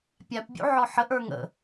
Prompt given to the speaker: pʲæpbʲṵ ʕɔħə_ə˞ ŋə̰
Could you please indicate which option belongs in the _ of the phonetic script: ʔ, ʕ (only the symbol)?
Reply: ʔ